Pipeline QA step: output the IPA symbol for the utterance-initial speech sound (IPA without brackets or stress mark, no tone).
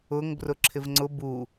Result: ʊ